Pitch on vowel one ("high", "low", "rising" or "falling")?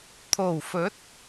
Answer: low